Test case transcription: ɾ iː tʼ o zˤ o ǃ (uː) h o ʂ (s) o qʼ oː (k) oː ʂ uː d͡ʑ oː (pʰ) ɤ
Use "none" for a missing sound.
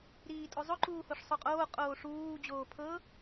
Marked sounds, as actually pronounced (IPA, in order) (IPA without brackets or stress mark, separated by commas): uː, sˤ, qʼ, pʰ